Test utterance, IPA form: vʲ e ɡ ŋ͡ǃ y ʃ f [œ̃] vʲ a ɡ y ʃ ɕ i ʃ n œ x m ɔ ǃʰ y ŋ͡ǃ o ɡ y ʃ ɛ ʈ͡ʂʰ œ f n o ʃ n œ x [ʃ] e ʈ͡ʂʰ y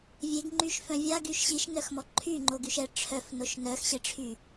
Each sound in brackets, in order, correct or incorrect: correct, incorrect: ɕ

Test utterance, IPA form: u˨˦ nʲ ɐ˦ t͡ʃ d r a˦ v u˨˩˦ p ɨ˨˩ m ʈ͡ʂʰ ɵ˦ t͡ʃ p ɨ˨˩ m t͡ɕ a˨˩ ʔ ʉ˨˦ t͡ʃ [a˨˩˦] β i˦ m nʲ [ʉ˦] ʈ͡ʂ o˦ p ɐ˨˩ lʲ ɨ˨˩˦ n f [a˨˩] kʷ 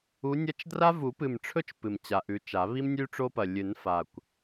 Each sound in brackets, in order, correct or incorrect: correct, correct, correct

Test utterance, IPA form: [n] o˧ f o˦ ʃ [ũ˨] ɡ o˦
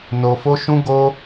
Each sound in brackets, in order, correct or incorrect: correct, incorrect: ũ˦

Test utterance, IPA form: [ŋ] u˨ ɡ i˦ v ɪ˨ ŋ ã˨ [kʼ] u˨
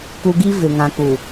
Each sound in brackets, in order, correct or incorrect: incorrect: k, incorrect: k

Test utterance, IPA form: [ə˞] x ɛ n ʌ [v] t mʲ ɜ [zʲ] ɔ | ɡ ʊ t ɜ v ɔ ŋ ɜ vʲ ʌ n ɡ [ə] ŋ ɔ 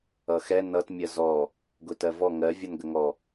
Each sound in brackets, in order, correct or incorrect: incorrect: ʌ, incorrect: none, incorrect: z, correct

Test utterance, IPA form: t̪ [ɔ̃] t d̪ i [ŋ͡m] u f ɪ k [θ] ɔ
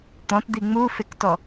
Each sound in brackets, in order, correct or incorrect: correct, correct, incorrect: t

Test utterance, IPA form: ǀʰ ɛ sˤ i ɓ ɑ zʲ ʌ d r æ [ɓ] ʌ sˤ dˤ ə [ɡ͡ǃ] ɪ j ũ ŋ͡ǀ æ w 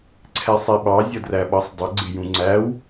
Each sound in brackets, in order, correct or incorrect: correct, incorrect: ɡ͡ǀ

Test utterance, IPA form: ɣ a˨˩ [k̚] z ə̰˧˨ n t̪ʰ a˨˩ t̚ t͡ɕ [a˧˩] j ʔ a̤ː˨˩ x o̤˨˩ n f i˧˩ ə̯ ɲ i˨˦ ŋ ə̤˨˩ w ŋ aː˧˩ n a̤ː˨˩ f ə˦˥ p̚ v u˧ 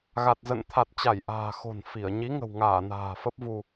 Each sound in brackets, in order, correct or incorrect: incorrect: t̚, correct

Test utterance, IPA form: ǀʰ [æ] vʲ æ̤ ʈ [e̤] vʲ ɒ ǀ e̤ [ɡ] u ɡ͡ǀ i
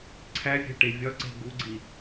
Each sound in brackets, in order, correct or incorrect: correct, incorrect: e, correct

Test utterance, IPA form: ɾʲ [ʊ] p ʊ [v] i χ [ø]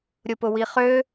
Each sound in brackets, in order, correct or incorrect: correct, incorrect: w, correct

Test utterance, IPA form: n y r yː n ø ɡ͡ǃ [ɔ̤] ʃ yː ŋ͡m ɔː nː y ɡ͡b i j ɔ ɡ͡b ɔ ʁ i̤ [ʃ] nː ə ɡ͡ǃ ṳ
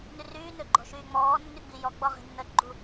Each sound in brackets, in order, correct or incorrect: correct, incorrect: none

